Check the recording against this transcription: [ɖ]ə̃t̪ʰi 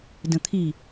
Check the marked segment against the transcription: incorrect: d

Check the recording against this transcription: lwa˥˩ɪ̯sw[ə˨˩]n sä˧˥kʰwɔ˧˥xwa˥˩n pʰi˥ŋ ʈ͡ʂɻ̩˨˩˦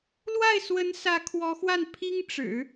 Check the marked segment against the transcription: incorrect: ə˧˥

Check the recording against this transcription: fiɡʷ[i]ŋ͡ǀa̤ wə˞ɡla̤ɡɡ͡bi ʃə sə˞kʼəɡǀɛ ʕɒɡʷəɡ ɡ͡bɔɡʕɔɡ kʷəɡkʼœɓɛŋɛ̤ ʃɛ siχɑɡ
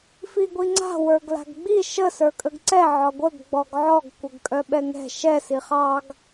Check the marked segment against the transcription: correct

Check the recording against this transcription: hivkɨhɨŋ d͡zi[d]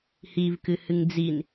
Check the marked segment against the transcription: incorrect: n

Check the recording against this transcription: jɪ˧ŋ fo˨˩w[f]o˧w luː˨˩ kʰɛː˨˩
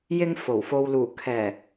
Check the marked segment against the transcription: correct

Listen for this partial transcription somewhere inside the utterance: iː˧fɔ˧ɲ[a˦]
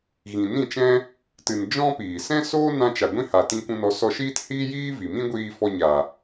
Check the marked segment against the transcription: incorrect: a˨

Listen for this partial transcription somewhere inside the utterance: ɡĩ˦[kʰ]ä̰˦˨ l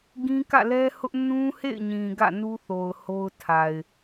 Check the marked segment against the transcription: incorrect: k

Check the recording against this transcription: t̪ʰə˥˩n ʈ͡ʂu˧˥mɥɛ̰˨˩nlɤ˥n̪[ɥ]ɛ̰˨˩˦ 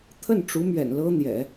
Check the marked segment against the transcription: incorrect: j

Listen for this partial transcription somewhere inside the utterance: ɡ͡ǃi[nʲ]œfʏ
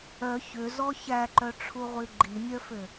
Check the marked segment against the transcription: correct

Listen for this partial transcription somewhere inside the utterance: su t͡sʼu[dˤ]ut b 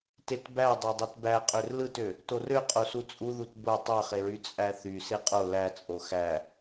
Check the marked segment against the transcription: incorrect: ð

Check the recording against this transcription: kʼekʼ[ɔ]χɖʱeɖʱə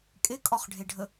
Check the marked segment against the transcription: correct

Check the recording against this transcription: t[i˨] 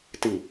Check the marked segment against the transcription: correct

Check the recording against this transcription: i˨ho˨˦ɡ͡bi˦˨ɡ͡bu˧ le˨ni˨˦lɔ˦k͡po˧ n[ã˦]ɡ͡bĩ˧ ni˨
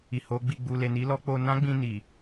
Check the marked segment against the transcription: correct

